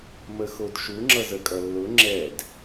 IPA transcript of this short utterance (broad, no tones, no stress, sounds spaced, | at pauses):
m ə x o d ʃ u ŋ͡ǁ ʌ z ə kʼ ʌ lː ʊ ŋ͡ǁ ɛ d